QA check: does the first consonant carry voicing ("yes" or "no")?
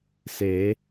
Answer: no